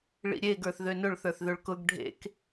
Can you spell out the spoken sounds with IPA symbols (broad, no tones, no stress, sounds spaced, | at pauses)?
ɭ ḭ ɾʲ e ɡ ə˞ θ ð ø n ʊ ɭ θ ə˞ θ ð ø ɭ k ʊ ɡ ɖʱ ḛ k